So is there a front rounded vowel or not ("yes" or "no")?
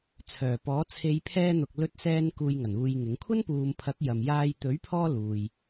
yes